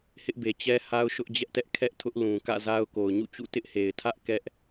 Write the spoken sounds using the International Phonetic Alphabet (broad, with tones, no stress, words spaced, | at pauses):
hɪ˦ʔbe˨ t͡ɕɛ˦ ha˦ʊ̯ʃʊ˦ʔd͡ʑɛ˦ʔtɛ˦ʔ kʰɛ˦ʔ tʰʊ˦ʔlũ˨ kä̰˦˨za˦ʊ̯ ko˨ʊ̯ɲṵ˦˨t͡ɕṵ˦˨ tɪ˦ʔhe˨ɪ̯tʰä˦ʔ kɛ˦ʔ